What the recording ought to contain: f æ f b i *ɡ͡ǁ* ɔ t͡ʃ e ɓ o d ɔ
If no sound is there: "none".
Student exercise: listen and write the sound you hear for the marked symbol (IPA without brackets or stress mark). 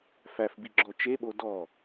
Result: ɡ͡ǁ